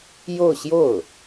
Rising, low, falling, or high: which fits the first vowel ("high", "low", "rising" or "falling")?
falling